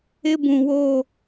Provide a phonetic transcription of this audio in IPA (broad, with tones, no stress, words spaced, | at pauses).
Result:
ɪ˦bũ˨woː˦˨